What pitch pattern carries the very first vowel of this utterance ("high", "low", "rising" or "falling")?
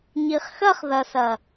low